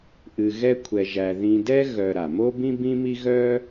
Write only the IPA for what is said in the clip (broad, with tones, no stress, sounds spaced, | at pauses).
ʔ ɨ˧ ɣ ɛ˥ kʷʰ ɛ˧ ʒ æ˧ ð ĩ˧ d ɛ˥ ɣ œ˧ ɾ a˩ m o˥ b ĩ˥ b ĩ˥ m i˥ ɣ œ˥